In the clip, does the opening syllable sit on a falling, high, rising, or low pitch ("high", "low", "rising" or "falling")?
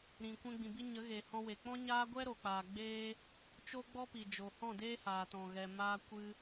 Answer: low